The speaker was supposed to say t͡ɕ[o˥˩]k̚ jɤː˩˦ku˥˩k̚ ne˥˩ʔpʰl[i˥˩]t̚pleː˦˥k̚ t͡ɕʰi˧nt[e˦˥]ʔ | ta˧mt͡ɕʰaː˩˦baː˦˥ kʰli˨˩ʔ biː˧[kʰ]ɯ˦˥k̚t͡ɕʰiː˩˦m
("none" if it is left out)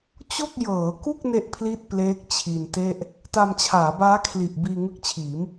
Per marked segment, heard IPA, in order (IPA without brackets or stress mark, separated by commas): o˥˩, i˥˩, e˥˩, ŋ